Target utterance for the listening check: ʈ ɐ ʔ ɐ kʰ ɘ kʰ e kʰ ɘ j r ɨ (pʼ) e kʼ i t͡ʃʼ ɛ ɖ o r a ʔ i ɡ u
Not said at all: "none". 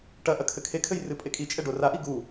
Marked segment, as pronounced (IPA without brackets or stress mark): pʼ